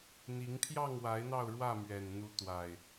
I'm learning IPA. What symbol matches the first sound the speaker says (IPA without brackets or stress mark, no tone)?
n̪